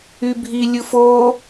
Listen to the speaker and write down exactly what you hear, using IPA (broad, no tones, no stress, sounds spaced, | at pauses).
y bʱ i lʲ ɯ f o